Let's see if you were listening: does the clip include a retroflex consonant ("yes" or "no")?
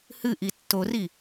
no